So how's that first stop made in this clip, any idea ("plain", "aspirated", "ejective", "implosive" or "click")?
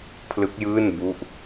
aspirated